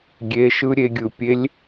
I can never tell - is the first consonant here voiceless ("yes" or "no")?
no